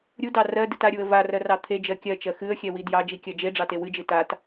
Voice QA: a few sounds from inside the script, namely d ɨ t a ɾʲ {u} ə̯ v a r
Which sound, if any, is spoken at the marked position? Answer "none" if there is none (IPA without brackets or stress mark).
u